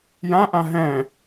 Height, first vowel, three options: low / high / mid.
low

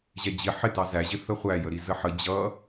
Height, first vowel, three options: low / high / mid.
mid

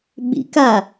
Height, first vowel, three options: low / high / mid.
high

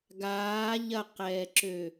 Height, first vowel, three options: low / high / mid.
low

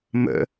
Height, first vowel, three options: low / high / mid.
mid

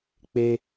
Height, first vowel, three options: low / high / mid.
mid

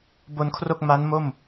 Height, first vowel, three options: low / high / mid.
mid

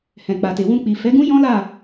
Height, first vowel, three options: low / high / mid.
mid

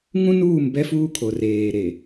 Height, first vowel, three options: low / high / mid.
high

